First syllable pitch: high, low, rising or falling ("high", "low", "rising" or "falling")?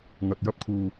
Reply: low